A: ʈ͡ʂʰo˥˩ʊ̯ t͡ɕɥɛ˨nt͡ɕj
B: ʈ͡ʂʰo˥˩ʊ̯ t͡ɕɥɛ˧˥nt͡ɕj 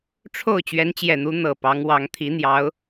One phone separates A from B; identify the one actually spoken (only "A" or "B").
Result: B